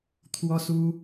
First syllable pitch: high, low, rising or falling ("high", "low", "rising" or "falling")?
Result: high